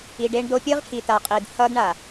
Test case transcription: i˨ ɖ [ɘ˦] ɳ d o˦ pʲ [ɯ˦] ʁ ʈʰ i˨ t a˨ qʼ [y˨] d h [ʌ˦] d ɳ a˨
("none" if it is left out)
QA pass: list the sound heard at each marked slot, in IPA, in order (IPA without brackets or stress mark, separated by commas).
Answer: e˦, ɯ˦, i˨, ʌ˦